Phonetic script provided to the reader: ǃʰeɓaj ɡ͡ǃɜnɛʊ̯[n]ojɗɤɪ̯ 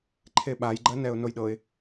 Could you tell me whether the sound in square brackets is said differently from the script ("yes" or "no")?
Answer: no